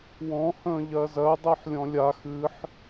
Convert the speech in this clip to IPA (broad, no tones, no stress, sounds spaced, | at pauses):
w ɔ̃ h ə̃ː ʎ ɜ z ɜ dˤ ɜ ħ lʲ ɔ̃ lʲ a x ɨ ħ